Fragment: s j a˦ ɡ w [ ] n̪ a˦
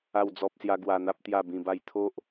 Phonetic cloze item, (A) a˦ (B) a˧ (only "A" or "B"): B